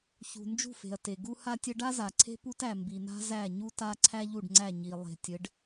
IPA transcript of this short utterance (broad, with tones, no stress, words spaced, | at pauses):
çṳ˨ nd͡ʒṳ˦˨fe̤˨ɐ̯ te˨ ɡu˦ha˦tʲɘ˦ ɖa˦za˨ǀʰe̤˦ pu˦t æ˨mbi˨na̤˦ zæ˦˨ɲu˦ta˦ ǀʰæ˦ʎu˦˨ɖŋ͡ǀæ˦˨ ɲi˨ lˠe̤˨ tʲɘ˨˦ɖ